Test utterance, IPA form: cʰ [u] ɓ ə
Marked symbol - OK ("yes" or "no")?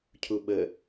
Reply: yes